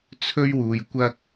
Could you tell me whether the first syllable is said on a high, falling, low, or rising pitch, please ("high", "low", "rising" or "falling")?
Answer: high